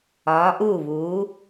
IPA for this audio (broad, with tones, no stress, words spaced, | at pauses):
ɒː˩˧ʔuː˧˩βuː˩˧